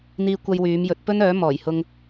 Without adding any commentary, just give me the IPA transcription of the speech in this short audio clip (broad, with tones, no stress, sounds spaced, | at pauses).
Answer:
n̪ iː˧ kʷ ɐ˧ j w yː˨˧ m j ɵ˨˥ t̚ p ɵ˥ n œː˨˥ m ɔː˨˩ j h ʊ˧ ŋ